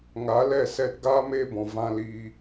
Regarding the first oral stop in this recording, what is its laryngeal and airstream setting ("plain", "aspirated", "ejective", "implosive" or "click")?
plain